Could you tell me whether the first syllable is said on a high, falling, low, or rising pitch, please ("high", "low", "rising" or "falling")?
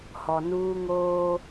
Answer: low